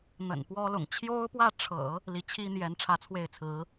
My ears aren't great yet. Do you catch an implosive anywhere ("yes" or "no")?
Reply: no